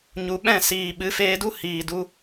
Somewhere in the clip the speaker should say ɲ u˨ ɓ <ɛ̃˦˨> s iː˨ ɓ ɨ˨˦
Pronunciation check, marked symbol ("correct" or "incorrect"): correct